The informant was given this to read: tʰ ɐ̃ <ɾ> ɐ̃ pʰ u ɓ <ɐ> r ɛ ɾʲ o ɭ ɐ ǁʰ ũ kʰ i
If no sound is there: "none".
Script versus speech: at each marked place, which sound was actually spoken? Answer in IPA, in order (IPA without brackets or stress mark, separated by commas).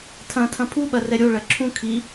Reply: tʰ, ɐ